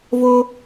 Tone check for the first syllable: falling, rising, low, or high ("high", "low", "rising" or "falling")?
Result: low